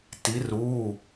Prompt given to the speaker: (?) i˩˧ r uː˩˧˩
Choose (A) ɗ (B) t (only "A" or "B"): B